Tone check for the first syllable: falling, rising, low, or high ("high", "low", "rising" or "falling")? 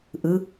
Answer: rising